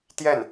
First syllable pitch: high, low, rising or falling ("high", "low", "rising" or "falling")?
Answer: falling